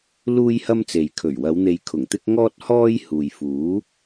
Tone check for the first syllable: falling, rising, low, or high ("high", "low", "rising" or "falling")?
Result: high